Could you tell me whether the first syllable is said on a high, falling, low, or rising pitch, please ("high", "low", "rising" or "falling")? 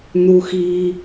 high